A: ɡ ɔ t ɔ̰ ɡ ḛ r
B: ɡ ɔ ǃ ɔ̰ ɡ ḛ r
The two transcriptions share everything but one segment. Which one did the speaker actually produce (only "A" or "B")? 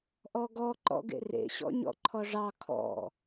B